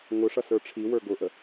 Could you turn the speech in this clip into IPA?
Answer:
ŋ ʊ ʂ ʌ s ə˞ ʈ͡ʂʰ i w ə˞ ɡ ʊ ʔ ə

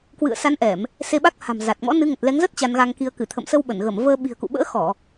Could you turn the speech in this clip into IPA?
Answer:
k w ɨ̰˧˨ ə̯ s a˨˦ n ʔ ɛ˧˩˨ m | s e˧ ɓ a˦˥ k̚ h a̤˨˩ m z a˨˩ t̚ ŋ ɔ̰˧˥ n ɨ˨˦ ŋ ə˨˩ t̚ l ɛ˨˦ ŋ z ə˦˥ t̚ t͡ɕ a˧ n ɣ a˧ ŋ k i˧ ə̯ k ɨ˧˩ t̪ʰ ə̰˧˨ m s ə˧ w ɓ ə˧˩ n ɣ ə˧˩ m v əː˧ ɓ i̤˨˩ ə̯ k ṵ˧˨ ɓ ə̰ː˧˥ x ɔ˧˩˨

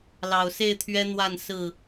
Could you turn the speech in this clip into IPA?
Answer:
l ɑ˨˩ ʊ̯ s e˥˨ ɪ̯ t̪ʰ ɥ ɛ˦ n̪ w a˥˨ n s ɹ̩˥˨

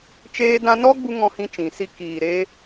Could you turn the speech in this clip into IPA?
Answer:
t͡ʃ eː˧ d ã˧ n ɔ˦ ɡ͡b u˧ ŋ ɔ̃˧ h ĩ˧ t͡ʃ ĩ˨ s i˧ k iː˨ ɾ eː˧

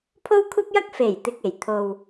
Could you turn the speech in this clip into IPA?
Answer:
pʰ o˥ w kʷʰ ɐ˥ p̚ j ɐ˥ k̚ f e˨˩ j t̪ ɪ˨ k̚ e˨˩ j t̪ʰ o˧ w

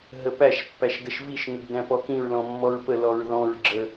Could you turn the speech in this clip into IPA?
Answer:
ɦ ə p æ ʃ pː æ ʃ d ə ʃ v i ʃ ŋ ə ɡ d æ̃ p ɔ k ĩ ɹ l ɔ̃ mː ɔ ɹ p ə l ɔ ɹ ð ɔ̃ ɹ ɡ͡ǁ ə

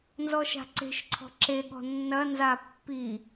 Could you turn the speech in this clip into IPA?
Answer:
n z ɔ ʃ a̤ ǀ e̤ ʃ ǀʰ ɔ̤ ǁ e ɠ ɔ̤ nː ɐ n z a pː i

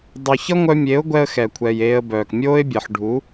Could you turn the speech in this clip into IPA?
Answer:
dˤ u˨ ç ʌ˦ ŋʷ œ˧ mʲ e˨˦ ʊ̯ ɡʷ ɛ˦ ə̯ x ɛ˨ kʷʰ ɛ˨ j eː˧ ə̯ b œː˨ k mʲ oː˦ ɪ̯ bʲ ɜ˨ ħ ɖʱ u˨˦

